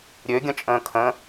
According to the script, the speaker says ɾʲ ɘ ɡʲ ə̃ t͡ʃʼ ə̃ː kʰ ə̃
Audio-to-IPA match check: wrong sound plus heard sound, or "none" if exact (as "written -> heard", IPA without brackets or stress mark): ɘ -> ø